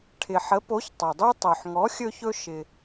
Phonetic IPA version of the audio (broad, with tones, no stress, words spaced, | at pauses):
ʈʰɪ˩ħə˩˥po˩˥ç tˤɛ˩dˤy˧ tˤo˩ħŋɔ˩˥xʲɵ˧çɵ˧ ʃɪ˩